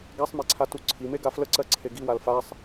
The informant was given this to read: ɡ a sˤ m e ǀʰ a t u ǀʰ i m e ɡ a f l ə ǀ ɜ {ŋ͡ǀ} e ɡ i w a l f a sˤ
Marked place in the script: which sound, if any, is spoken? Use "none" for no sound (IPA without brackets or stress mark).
ǀʰ